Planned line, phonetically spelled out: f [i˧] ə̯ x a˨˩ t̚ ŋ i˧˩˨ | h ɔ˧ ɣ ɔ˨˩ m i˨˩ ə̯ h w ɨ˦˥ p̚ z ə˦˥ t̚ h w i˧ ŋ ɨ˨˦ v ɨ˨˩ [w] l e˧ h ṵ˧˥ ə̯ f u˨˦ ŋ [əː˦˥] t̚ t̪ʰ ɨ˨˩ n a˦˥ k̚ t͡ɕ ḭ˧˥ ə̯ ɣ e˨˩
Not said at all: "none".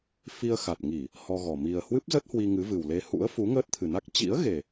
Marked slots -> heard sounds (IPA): i˧, w, əː˦˥

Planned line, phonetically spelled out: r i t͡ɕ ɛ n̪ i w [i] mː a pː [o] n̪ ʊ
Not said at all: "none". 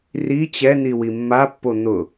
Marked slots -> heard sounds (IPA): i, o

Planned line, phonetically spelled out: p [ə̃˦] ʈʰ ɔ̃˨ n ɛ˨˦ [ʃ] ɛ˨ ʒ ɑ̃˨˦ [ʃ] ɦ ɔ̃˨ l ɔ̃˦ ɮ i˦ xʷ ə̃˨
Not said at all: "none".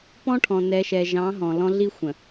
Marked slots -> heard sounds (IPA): ɔ̃˦, ʃ, none

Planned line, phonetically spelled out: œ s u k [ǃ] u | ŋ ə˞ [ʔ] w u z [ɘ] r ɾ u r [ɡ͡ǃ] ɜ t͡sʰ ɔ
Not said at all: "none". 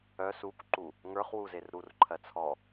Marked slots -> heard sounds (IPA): ǃ, χ, e, ǃʰ

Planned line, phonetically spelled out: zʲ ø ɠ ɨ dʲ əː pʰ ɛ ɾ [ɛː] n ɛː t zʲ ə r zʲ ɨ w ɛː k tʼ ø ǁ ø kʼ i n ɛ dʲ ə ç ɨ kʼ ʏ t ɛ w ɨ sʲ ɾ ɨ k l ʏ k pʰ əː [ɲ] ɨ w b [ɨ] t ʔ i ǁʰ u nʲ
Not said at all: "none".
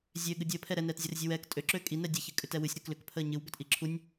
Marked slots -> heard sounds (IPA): ɛ, ɲ, ʏ

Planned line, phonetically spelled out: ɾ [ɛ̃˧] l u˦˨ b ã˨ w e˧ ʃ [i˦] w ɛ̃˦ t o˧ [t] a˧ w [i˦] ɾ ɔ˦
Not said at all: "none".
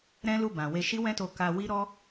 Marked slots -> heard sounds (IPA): ɛ̃˦, i˦, k, i˦

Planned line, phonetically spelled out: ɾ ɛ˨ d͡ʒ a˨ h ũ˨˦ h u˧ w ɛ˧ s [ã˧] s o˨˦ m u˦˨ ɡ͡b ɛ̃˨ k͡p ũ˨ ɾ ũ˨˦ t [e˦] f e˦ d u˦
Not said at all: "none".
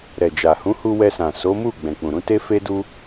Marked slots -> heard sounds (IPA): ã˨, e˦

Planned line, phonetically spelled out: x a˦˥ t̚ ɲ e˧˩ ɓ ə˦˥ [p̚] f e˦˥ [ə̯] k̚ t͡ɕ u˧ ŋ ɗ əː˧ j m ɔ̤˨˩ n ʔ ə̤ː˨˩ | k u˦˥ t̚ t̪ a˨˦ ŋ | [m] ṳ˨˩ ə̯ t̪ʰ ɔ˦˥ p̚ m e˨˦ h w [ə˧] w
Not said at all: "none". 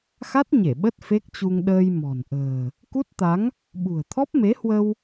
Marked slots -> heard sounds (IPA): t̚, none, ɓ, ə˧

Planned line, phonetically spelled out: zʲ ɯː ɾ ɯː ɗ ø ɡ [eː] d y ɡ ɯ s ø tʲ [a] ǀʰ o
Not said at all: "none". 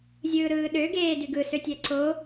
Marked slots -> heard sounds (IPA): eː, æ

